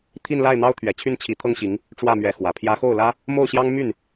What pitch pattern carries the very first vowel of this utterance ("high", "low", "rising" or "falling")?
falling